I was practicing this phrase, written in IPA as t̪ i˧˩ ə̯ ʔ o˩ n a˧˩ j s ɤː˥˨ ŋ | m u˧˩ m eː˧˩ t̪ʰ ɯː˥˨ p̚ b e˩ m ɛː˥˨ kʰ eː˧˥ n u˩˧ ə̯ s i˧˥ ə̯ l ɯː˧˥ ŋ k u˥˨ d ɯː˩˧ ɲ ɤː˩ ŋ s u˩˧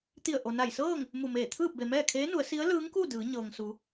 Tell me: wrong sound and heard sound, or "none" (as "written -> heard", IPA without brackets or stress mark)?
none